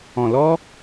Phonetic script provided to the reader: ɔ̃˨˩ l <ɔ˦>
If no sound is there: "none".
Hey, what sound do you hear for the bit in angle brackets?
ɔ˦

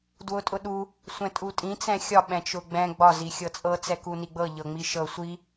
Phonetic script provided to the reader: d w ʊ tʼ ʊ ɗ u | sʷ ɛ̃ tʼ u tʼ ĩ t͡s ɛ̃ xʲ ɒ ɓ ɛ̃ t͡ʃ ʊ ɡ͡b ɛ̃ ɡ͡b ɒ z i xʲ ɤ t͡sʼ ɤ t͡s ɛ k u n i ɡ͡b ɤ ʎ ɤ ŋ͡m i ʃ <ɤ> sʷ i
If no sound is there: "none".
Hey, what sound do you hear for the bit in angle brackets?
ɤ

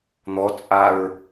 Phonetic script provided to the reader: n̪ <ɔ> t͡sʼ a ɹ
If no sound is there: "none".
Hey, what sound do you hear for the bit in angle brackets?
ɔ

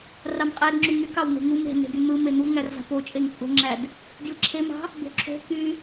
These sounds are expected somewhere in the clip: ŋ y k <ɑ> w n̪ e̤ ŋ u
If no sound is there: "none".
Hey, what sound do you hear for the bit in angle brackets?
ɑ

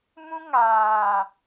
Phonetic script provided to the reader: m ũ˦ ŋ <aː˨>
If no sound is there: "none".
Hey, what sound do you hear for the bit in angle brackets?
aː˨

